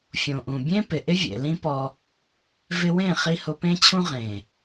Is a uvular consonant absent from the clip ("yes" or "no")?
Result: no